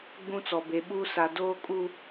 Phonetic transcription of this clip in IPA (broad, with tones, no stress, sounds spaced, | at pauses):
ɡ͡b ũ˦ t͡s ɔ˨ b e˨ ɓ uː˦ s a˨ d oː˦ kʼ u˦